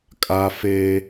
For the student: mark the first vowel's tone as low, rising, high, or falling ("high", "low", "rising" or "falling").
high